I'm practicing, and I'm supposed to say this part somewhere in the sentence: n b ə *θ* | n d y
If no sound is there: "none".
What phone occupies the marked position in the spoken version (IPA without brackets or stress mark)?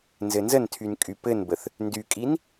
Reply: θ